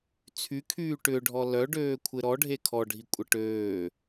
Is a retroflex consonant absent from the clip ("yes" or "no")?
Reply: no